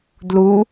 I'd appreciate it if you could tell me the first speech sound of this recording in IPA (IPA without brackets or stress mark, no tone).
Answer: d